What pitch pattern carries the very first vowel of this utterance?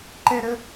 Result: high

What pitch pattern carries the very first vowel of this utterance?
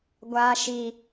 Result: high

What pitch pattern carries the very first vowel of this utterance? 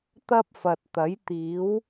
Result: high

